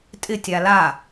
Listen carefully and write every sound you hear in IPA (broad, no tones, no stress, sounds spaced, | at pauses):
tʼ ɪ tʲ a l a